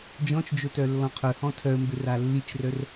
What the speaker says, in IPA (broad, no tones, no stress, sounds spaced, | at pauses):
d͡ʒ ɔ̃ t͡ʃ d͡ʒ o t œ lː ɔ̃ qʰ ɵ h ɔ̃ tʰ œ ə̯ m b ø r a lː i t͡ʃ r œ r